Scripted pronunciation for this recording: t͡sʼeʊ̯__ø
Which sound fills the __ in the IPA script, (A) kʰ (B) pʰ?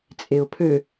B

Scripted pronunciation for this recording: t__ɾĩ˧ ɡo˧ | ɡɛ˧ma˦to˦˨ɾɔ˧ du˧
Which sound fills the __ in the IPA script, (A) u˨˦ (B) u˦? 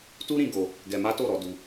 B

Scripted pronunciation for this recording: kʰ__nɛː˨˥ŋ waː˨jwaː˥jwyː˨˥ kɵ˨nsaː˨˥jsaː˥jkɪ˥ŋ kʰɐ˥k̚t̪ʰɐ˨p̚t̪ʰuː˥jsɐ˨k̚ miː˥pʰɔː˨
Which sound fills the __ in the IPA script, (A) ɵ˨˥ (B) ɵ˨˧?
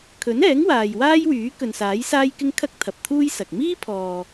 A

